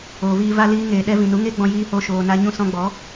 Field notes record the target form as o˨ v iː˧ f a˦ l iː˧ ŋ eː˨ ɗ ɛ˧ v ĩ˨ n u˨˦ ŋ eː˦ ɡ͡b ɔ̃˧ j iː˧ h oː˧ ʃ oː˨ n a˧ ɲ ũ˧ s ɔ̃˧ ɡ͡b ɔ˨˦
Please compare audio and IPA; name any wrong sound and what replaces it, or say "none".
f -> v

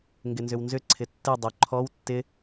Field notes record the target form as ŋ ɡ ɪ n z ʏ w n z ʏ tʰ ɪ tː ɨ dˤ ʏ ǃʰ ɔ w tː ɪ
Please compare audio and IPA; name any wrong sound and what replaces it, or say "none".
tʰ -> ǀʰ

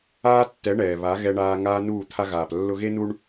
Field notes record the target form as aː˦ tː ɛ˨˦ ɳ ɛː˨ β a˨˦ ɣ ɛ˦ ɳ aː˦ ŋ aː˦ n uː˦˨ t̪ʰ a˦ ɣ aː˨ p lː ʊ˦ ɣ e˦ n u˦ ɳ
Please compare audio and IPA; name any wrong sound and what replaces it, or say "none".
none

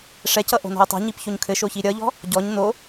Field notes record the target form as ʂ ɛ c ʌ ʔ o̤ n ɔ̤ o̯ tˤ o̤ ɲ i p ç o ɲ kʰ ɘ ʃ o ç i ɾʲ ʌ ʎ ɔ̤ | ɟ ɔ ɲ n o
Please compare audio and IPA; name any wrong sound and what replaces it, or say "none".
none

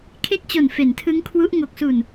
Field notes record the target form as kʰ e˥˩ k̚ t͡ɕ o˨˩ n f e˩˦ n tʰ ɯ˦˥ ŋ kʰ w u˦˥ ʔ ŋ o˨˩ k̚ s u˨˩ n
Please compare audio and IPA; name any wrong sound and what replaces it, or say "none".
none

